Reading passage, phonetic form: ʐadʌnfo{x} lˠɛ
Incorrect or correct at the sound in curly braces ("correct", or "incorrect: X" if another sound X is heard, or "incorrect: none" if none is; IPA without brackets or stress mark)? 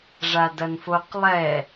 incorrect: q